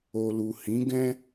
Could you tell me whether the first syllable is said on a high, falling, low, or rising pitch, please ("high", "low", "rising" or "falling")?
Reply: low